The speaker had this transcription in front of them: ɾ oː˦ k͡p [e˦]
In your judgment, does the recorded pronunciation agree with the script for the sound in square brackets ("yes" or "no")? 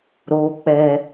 no